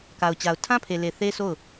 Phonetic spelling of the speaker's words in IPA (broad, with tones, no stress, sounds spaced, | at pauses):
k a˨ ʊ̯ t͡ɕ a˨ ʊ̯ tʰ ã˦ pʰ e˨ l e˨ θ e˦ s o˦˨ ʊ̯